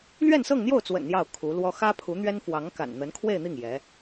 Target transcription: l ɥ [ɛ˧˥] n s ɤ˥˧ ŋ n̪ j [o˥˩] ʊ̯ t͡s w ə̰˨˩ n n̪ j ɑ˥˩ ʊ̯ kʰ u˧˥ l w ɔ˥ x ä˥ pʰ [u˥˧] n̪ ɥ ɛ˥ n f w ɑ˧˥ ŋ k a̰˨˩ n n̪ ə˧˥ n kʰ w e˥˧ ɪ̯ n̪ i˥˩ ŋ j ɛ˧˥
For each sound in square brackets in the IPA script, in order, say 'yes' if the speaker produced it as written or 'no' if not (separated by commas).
no, yes, no